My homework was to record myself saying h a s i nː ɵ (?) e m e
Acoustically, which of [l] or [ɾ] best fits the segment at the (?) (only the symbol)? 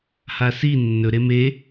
ɾ